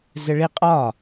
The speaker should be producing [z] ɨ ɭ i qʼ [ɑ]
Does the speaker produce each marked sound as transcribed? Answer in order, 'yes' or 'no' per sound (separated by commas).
yes, no